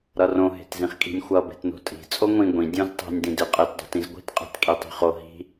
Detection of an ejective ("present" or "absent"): present